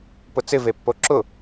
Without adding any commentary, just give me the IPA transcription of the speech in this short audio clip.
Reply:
p ʊ t͡s ɪ v e pː o ǁ ʊ

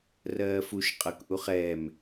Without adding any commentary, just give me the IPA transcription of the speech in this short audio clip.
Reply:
r ɜː f u ʃ qʼ ɤ k ʔ u χ ɛː m

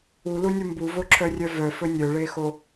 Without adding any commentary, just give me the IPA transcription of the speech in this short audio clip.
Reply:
u l u nʲ u m b u v o ǁʰ œ rʲ œ v œ f ɵ nʲ œ ɭ e x o

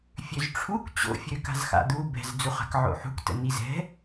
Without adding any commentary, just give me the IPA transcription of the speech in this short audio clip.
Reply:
fʲ ø z ʈ͡ʂʰ u k t͡ɕ o̰ fʲ ø k a̤ z x a̰ d̪ u b ɛ̤ z d͡z u χ a̤ k ʕ o̰ ħ ṳ k t ə̰ n i z ɛ̤

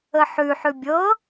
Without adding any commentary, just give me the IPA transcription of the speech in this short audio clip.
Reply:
ə ħ ʉ ħ ʉ bʲ ɤ

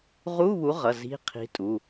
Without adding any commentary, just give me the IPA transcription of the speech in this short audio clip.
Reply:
ʁ u˧˥˧ β u˨˥ ʁ ʌ˩˧˩ z i̤˧˥˧ qʰ i̤˨˥ tʼ u˩˧˩

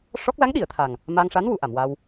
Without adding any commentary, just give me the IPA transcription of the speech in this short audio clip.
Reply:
ʂ ɔ˦˥ k̚ l a˧˥ ŋ ɗ i˨˩˨ ə̯ t̪ʰ a˨˩ ŋ | m a˧ ŋ ʂ a˧˥ n w u˨˩˨ ʔ a˨˩˨ m w a˧ w

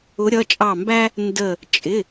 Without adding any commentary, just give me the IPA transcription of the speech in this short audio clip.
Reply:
ʊ˨˦ ɾʲ ʌ˩˧˩ t͡ʃʼ ɑ˧˩ m b æ˦ | n d ə˧˩ | t͡ʃʼ ɪ˩˧˩

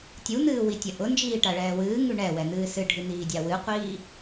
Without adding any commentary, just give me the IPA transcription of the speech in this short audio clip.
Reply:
tʲ u n̪ ɨː w i tʲ ɐ ʔ ʊ n d͡ʒ iː ʈ a ɭ ɛː w ɨː ŋ ʉ ɳ ɛ w ɛ n̪ ɨː s ɨ ɖʱ ɨ n̪ iː dʲ a w ɨ qʷ iː

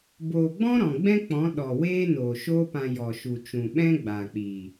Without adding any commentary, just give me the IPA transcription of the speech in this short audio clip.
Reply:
b oː˨ ɡ͡b ɔ̃˦ ɾ ɔ̃˨ ɡ͡b ɛ̃˦ k͡p ɔ̃˨˦ ɗ ɔ˨ w eː˦ n oː˨ ʃ oː˦ p ã˧ j ɔ˨ ʃ u˨ t͡ʃ ũ˨ ɓ ɛ̃˦ ɡ͡b aː˨ k͡p iː˨

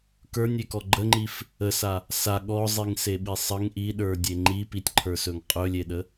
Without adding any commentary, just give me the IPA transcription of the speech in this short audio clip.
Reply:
k ə˞ nʲ e k ɔ ɡ͡ǃ ə ŋ͡ǃ i f | ə s a | s a ɠ ɔ zˤ i ŋ s e ɓ i sˤ ə ŋ ʔ i ɗ ə˞ dʲ e ŋ͡ǃ i p i tʲ ǃʰ ə˞ s ɵ ŋ qʼ ɵ lʲ e ɗ ə

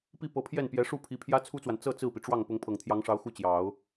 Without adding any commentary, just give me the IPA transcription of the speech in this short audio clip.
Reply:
p i˥˩ p ɤ˧˥ pʰ j ɛ˥˩ n p j ɛ˧˥ ʂ u˥˩ pʰ i˧˥ pʰ j ä˥ t͡sʰ u˥ t͡s w a˨ n t͡s ɤ˥˧ t͡s ɹ̩˥˩ p i˩ ʈ͡ʂ w ɑ˥˩ ŋ p ʊ˧˥ ŋ pʰ ɤ˨˩ ŋ t̪ʰ j ɑ˧˥ ŋ ʂ ɑ˧˥ ʊ̯ x u˥˩ t͡ɕ j ɑ˨˩˦ ʊ̯

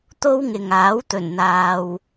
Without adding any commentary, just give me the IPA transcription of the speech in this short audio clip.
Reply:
t̪ o˥ w ŋ ɪ˨ ŋ aː˨˥ w t̪ ɵ˨˩ n n̪ aː˨ w

